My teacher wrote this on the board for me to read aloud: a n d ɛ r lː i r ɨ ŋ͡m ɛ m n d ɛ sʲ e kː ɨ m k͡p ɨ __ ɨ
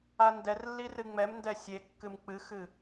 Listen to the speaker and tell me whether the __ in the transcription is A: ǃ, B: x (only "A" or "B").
B